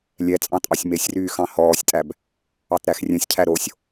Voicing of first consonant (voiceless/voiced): voiced